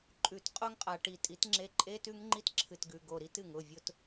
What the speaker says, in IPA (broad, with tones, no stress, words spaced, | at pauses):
ǃʼʉ˨t qʼo˦ŋqʼa˨ ʈi˨tʼi˨˦tŋ͡ǁe˧ ǃʼe˦tʉ˦ŋŋ͡ǃi˦t ǁʰɨ˨tɡʉ˨ ɡo˨ ɾi˦tɨ˨ŋ ʊ˦˨vʲʊ˦t